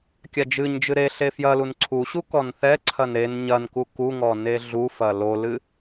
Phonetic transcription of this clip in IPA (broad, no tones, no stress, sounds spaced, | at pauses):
kʲ a d͡ʒ ɨ ɲ d͡ʒ ɨ ɾ e ɬ e f j ɐ l u n ǀʰ u ɕ u k ɔ n θ ɛ ǀʰ ɐ n ɾ e n ɲ ɐ n k u k u ŋ ɔ n e ɮ u f ɐ l o l ɨ